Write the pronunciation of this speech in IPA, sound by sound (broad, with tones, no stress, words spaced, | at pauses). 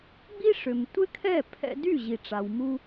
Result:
ɡ͡bi˥ʂʏ˩mtʷɪ˥kʰɛ˥˩ pʰɛ̰˧dy˥˩ ʑi˩ʈ͡ʂa˩w mu˧